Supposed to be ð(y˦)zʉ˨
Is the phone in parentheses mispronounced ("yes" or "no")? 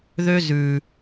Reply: yes